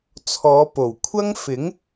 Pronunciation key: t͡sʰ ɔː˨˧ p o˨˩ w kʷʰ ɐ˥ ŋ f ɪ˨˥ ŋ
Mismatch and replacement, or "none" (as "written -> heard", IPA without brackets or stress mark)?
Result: none